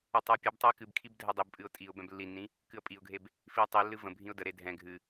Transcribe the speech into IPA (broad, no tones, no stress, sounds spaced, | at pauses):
ə tˤ ə ʊ̯ pʲ ɨ b tˤ ɛ ɪ̯ k ɨ b kʰ i b dʱ ɛ dˤ i b pʼ ɨ ʊ̯ tʼ i ʊ̯ b ɛ̃ b lː i nː ĩ | k ɨ ə̯ pʼ i ʊ̯ ɡʱ e b | f i ə̯ tˤ i lː ɨ v ə̃ bʱ ĩ ʊ̯ d ə ɾ e dʱ ɛ̃ ɡʱ ɨ